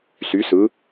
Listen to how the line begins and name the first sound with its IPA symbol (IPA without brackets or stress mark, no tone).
s